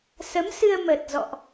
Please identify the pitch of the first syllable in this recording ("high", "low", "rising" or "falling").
rising